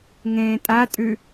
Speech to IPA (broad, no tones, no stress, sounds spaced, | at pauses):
ŋ ẽː tʼ a tʼ ʉ